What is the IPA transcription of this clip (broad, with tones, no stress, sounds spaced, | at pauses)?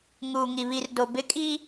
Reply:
ŋ uː˨ ŋ i˨ β i˨ r d o˨ b ɪ˦ kʼ iː˦